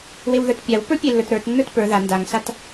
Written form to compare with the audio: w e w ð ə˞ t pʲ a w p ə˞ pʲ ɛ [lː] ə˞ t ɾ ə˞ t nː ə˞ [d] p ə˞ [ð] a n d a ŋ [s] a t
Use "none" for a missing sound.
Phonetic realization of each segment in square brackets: lː, t, ð, s

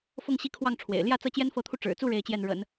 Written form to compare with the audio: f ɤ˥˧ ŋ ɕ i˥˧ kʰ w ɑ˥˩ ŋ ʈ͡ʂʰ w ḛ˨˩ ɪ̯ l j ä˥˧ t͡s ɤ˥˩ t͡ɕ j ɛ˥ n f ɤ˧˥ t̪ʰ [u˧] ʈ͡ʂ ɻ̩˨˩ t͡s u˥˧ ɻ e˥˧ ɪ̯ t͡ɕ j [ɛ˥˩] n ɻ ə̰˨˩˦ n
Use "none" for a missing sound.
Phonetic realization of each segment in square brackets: u˧, ɛ˥˩

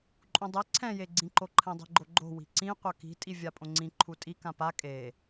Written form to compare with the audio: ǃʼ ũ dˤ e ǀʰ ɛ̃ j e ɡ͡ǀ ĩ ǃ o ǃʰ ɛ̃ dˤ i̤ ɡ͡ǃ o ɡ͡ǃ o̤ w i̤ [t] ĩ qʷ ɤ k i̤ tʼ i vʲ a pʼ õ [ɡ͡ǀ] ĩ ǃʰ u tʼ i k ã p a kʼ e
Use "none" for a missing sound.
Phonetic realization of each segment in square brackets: ǀ, ŋ͡ǀ

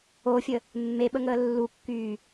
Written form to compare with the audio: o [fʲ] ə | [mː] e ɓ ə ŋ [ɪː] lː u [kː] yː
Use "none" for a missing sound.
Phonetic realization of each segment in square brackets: fʲ, mː, əː, kː

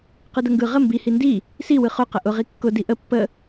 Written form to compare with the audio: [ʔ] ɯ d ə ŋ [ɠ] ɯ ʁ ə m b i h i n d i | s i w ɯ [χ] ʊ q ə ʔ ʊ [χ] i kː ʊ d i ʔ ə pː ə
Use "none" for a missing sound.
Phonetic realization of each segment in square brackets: q, ɡ, χ, ʁ

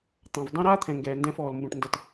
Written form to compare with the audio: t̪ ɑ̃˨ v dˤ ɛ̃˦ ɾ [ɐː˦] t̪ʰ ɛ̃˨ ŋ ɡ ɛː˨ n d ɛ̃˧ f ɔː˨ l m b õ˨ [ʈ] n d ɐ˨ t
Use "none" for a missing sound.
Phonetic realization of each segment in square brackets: aː˦, ʈ

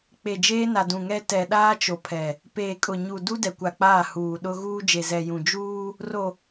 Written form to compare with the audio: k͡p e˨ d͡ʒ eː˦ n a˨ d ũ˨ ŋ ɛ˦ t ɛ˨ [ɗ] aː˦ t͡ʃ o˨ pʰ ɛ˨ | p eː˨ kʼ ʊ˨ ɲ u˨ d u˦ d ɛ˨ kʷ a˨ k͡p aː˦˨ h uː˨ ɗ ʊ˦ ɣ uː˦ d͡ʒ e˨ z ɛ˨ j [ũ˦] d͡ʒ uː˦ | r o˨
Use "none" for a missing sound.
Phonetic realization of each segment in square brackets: ɗ, ũ˨

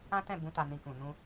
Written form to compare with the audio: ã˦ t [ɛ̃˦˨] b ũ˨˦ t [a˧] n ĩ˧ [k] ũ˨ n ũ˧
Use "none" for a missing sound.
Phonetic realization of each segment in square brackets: ɛ̃˦˨, a˧, k

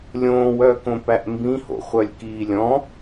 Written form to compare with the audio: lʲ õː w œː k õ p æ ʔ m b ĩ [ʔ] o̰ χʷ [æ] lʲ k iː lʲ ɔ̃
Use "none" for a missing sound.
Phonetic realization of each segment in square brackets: h, œ

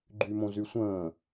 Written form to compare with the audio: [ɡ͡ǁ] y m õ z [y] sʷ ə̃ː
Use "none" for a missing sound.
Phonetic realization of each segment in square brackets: ɡ͡ǃ, y

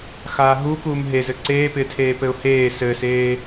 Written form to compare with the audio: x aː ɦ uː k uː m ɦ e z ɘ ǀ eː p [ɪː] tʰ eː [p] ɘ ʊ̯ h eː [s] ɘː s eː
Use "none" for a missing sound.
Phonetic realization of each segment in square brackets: ɪː, p, s

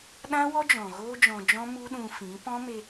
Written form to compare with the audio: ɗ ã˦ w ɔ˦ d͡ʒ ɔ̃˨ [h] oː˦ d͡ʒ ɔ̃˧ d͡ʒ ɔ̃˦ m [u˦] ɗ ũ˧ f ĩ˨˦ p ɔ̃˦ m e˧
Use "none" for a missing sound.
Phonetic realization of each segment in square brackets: ɣ, u˦

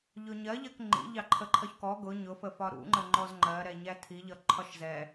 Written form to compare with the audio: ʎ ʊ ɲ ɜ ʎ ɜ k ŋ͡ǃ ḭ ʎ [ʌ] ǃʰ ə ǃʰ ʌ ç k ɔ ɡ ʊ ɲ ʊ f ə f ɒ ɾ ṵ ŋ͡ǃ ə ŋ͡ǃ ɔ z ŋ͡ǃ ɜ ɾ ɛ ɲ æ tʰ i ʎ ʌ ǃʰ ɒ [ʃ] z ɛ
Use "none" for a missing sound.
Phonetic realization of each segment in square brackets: ɑ, ʃ

